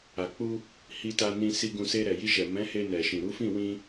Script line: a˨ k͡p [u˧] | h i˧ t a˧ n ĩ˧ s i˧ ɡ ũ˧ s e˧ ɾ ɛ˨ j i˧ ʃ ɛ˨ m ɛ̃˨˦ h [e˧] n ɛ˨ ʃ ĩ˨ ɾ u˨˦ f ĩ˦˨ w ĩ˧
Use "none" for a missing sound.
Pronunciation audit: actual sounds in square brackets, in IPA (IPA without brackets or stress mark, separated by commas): u˧, e˧